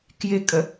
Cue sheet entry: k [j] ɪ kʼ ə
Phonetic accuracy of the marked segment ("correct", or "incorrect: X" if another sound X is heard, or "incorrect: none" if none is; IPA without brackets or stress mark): correct